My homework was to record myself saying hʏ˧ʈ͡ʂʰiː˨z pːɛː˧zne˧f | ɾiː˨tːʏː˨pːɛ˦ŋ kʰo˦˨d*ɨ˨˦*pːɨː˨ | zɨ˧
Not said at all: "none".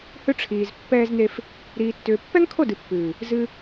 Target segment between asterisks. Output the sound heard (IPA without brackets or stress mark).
ɨ˨